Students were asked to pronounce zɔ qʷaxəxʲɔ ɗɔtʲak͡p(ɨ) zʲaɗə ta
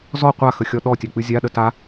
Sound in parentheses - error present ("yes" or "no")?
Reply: no